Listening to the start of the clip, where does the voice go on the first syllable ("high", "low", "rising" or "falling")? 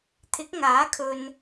rising